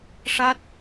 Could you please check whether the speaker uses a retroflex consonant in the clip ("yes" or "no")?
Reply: yes